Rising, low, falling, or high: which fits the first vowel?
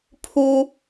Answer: high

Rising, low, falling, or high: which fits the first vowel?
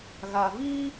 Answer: low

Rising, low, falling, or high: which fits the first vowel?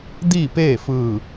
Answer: falling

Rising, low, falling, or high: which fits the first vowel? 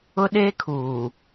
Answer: high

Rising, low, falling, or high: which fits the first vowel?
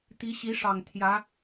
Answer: rising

